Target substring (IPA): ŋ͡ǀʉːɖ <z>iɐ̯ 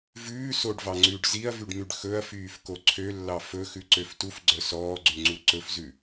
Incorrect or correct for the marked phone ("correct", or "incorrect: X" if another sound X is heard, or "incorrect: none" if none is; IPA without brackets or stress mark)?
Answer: correct